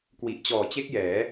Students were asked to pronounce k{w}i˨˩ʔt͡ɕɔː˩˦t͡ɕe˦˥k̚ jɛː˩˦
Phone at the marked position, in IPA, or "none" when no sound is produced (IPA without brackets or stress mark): w